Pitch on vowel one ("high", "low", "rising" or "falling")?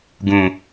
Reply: low